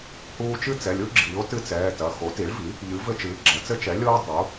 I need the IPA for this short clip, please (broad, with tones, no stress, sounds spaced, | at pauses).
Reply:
h uː˦ t͡ʃ ɨ˦ t͡s ɛ˩˧˩ lʲ u˦ ɡ͡ǁ iː˩˥ o̯ t ɨ˦ t͡s ɛː˩˧˩ t ɐ˩˧˩ x o˩˥ t i˩˥ ɭ v i˩˥ | ʎ ɨ˩˥ v ɘ˦ t͡ʃ ɨː˩˥ ɡ͡ǁ ɐ˩˥ t͡s ɘ˦ t͡ʃ ɛ˩˥ lʲ oː˦ dˤ u˩˥